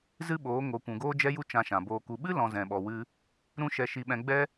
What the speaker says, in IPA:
z ɨ˦ ɓ oː˨˦ ŋ o˨ kʷ ũ˨ ɡ oː˦ d͡ʒ ɛ˦ j u˦ t͡ʃ ã˧ ʃ ã˨ b oː˧ k u˧ ɓ ɨ˦ l ɔ̃˨ z ɛ̃˨ ɓ ɔ˨ w ɨ˧ | ɾ ũ˦ ʃ ɛ˧ ʃ i˧ ɓ ɛ̃˧ ɡ͡b ɛ˦

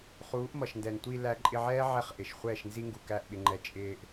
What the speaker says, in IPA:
χ uː˨˦ ʔ m ʌ˨ ʃ n d ɛ˨ n tʷ i˧ l æ˧ ǃʼ ɪ˧ ʕ ɛː˦ ʕ ɛ˦ χ ʔ ɪ˨ ʃ χʷ ɛː˦˨ ʃ n z i˦ ŋ ɡ u˨ k æ˦˨ ʔ ɓ ɪ˧ ŋ͡ǃ ɛ˧ t͡ʃʼ ɪː˧ ʔ

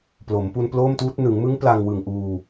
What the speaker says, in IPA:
p l o˩˦ m p u˧ n p l oː˥˩ m t uː˦˥ t̚ n ɯ˩˦ ŋ m ɯ˦˥ ŋ p l a˧ ŋ w ɯ˨˩ ŋ ʔ uː˧

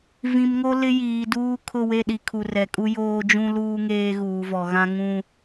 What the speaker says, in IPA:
v ĩ˨ m ŋ o˦ l ɪ˦ j iː˨ d uː˦ kʰ ʊ˦˨ w e˦˨ ɗ i˨ kʰ u˨ r ɛ˨ kʼ u˦ j oː˦ d͡ʒ ũ˦ l uː˦ ŋ eː˦ ɣ uː˨ v ɔ˨ ɣ ã˦ ŋ ũ˦

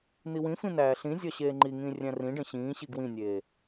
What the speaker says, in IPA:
n̪ i w ĩ f ĩ n æː ɬ ĩ zʲ ɒ ɕ eː ŋ͡ǃ i ŋ ĩː rʲ æ̃ r ĩ ɖ ẽ ɕ ĩː ɕ i ɡ w ĩ nʲ eː

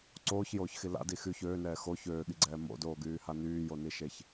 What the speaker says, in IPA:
ǀ oː ç j oː ç x i l a̰ d i x y ç øː n ɛː x o ç øː ɠ i ɡ͡ǀ ɛː m o̰ d oː ɡ yː h a n yː j o n i ʃ e ç

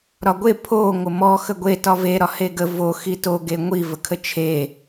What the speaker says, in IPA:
ɾ ɒ ɡʷ e pʰ o ŋʷ ə m ɔ x ə ɡʷ e t ɒ v e ɾ ɒ h e ɡ ə v o x i t o ɡ e ŋʷ i v ə kʰ ə t͡ʃʰ e

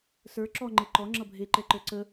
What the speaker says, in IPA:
s ə˞ ǁ ɔ ŋ͡ǃ e ǃ ɔ ŋ͡ǁ ʌ bʱ e ǃ ɛ ǃ ə˞ ǀ ə

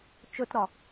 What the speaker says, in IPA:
t͡ʃ ɵ t ɾ ɒ

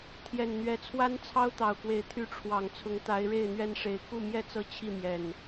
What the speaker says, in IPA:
t̪ʰ j ɛ˨˩ n n̪ ɥ ɛ˨˦ t͡sʰ w a˦ n t͡sʰ ɑ˦ ʊ̯ t̪ ɑ˨˩ ʊ̯ k w e˨˦ ɪ̯ t̪ʰ y˨˦ ʈ͡ʂʰ w ɑ˨˩ ŋ t͡sʰ ʊ˨˦ ŋ t̪ a˨˦ ɪ̯ ɻ e˥˨ ɪ̯ n̪ ɥ ɛ˦ n ʂ e˨˦ ɪ̯ k u˥˨ m j ɛ˥˨ t͡s ɤ˥˨ t͡ɕʰ i˥˨ m j ɛ˨˩ n

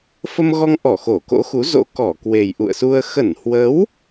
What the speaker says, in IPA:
f ə˧ m ɣ ɔ˧ ŋ ʔ ɔ˧˩ x o˧˩ k o̰˧˥ x u˨˦ z o̰˧˥ k ɔ˧˩ k w e˨˩ j ʔ ṵ˧˨ ə̯ s u˧ ə̯ x ə˧˩ n h w ə˨˦ w

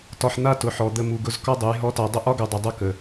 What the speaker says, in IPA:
t ɒ˧ ħ n̪ a˦ t ʊ˨ ħ ɔ˨ d̪ ə˧ m u˨ ɡ ʊ˧ z k ɒ˦ dˤ ʊ˨˦ j ɦ ɔ˦ t a˧ dˤ ə˦ ʔ ɒ˦ ɡ u˨ dˤ ə˨ dˤ ʊ˦˨ k ə˨

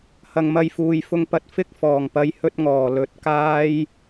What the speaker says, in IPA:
h ɐ˨ ŋ m ɐ˧ j f uː˨ j f ʊ˧ ŋ p ɐ˧ t̚ f ɪ˥ k̚ f ɔː˨˩ ŋ p ɐ˨˧ j h ɵ˧ t̚ ŋ ɔː˨˩ l ɵ˨˥ t̚ k aː˥ j

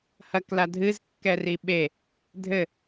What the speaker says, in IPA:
h ɐ k l a dʱ ɨ z kː ɛ r i ɓ e | dʱ ɘ

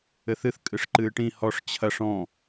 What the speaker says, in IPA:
ɘ θ ɨ θ kʼ ɨ ʂ ǃ ɨː ʈ ĩ h ɔ ʂ t͡ɕʰ ɐ ʂ ɔ̃

